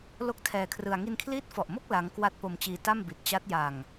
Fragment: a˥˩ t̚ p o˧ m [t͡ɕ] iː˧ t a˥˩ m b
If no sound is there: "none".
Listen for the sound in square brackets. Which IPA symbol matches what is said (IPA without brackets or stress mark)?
t͡ɕ